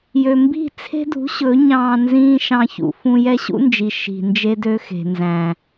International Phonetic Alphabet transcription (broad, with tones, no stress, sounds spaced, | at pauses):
j ø˨ m b i̤˦˨ t͡sʰ e̤˦ d ṳ˨˦ ɕ ɵ˨˦ ɲ ɑ̃ː˧ n z ĩː˦ ʃ ɑ̃˧ ç ṵ˨ f ũ˧ j ɛ˦ ɕ ṵ˦ n d͡ʒ i˨ ʃ i̤˨ n d͡ʒ e˦ d ø˦ x e̤˨ n z æ̃˨